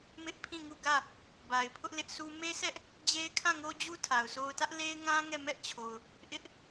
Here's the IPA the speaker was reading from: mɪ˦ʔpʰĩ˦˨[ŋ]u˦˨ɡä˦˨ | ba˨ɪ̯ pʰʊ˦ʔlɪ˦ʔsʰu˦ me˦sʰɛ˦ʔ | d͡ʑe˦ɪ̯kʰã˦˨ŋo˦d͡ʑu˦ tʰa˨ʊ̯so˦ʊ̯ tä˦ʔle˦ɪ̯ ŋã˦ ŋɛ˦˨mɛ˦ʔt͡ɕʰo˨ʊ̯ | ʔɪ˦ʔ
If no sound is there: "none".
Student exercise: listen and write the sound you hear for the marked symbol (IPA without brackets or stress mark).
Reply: ŋ